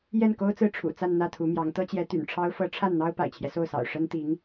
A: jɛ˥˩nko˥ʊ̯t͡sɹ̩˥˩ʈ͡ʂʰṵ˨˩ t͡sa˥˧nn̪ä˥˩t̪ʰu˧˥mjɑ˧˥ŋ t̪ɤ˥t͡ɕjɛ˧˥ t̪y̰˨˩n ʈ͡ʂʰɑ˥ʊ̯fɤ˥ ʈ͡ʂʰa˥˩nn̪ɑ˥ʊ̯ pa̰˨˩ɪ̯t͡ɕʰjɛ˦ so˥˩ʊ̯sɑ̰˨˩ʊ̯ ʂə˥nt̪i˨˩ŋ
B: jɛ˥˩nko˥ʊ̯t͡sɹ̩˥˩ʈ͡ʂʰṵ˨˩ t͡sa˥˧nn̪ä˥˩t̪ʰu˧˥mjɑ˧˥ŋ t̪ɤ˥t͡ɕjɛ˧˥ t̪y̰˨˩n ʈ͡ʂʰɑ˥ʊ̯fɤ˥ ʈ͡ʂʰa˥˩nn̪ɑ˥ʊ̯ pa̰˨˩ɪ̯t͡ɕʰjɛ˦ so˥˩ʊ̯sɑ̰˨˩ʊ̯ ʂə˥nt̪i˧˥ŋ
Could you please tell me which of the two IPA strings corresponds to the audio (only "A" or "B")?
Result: B